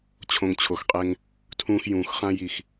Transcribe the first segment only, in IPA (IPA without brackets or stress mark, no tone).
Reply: t͡ɕʰ